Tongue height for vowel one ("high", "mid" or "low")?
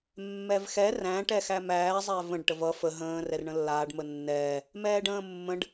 mid